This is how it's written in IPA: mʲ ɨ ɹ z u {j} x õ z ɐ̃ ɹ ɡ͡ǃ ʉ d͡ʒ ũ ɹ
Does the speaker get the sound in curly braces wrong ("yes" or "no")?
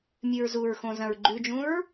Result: yes